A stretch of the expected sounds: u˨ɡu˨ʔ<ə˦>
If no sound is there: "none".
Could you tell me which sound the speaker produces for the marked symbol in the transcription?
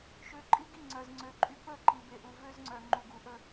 ə˦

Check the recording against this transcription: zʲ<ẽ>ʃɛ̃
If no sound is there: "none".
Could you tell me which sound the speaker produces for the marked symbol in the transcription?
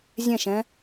ɛ̃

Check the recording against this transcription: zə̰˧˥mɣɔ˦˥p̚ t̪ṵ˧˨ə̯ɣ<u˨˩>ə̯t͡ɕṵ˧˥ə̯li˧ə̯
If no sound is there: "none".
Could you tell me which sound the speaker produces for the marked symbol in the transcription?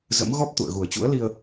u˨˩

